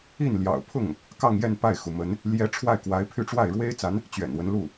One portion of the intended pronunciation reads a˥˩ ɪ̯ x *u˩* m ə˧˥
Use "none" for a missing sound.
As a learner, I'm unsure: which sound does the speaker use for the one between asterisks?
u˩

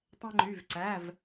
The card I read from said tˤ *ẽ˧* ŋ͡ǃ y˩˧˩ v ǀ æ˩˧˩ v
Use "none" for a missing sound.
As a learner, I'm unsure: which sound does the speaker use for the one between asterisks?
ẽ˧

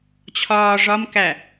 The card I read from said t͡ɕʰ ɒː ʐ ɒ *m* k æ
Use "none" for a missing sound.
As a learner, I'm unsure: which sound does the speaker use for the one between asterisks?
m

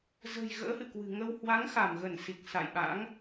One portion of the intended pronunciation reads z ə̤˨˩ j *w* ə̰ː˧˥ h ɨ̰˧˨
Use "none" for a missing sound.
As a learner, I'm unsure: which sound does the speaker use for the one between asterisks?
ɣ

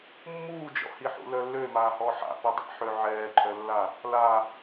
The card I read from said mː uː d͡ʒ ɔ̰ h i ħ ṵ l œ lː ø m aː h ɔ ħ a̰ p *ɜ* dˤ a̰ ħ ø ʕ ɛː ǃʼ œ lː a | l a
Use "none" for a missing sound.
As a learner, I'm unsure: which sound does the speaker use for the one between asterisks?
ɛ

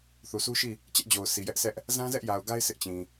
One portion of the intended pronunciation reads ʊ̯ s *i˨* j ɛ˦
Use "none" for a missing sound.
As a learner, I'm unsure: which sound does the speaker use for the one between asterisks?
i˨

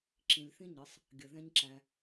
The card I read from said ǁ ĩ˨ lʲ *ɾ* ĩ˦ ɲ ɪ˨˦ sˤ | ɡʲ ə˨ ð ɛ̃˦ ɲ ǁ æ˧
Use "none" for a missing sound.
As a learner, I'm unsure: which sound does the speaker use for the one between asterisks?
θ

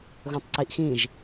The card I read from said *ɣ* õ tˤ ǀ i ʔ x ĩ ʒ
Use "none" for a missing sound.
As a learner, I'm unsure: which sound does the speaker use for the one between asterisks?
ɣ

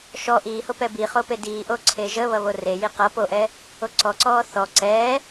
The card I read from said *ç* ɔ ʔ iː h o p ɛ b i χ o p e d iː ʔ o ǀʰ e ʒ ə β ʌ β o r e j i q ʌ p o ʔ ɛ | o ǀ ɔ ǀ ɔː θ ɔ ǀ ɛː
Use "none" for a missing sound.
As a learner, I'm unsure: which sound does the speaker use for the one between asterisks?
ʃ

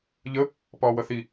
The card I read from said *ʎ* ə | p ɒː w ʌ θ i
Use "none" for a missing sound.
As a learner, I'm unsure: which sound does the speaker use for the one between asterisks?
ʎ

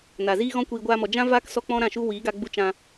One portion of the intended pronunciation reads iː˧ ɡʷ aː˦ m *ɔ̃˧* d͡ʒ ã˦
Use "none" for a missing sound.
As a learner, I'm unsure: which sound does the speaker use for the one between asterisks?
ɔ˧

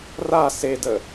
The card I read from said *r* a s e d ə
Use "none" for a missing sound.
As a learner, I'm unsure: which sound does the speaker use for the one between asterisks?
r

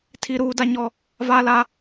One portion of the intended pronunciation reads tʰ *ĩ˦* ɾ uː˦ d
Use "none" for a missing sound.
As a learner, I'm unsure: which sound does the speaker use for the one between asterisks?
i˦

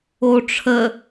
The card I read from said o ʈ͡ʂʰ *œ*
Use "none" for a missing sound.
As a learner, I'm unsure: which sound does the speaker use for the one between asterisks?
ə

